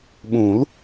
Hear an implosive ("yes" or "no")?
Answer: yes